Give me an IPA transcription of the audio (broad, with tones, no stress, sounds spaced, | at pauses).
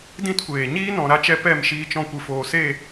d ĩ˦ t kʷ eː˨ ɲ iː˦ n ɔ̃˨ ɾ a˧ t͡ʃ ɛ˧ p ɛ˦˨ m ʃ iː˧ t͡ʃ ɔ̃˧ kʷ ɨ˨ f oː˨ s e˦˨